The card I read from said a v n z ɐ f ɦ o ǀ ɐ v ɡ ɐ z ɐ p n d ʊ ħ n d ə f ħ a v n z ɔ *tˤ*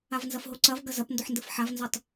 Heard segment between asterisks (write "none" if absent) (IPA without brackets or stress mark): tˤ